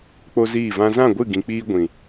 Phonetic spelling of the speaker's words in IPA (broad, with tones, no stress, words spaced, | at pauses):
k͡po˦ziː˦˨vã˦ zã˦˨ɡʷɨ˦˨ɡĩ˨k͡piː˧ ɡʷĩ˨